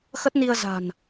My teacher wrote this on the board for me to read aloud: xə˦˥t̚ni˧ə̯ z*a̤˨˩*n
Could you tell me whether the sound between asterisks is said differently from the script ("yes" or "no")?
no